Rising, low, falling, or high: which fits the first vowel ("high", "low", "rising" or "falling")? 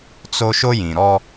high